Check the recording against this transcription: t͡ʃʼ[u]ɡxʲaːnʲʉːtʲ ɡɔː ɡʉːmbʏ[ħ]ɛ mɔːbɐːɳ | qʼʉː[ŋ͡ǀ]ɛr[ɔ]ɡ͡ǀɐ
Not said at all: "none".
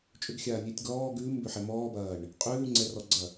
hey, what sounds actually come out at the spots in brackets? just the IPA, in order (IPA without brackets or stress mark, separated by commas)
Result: ʏ, ħ, ŋ͡ǀ, ɔ